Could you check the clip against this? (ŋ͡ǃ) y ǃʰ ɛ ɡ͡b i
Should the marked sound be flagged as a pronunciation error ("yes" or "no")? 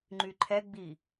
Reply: no